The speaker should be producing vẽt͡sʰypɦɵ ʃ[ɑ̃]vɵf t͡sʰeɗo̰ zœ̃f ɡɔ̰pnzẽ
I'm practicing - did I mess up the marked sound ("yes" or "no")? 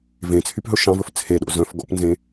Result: no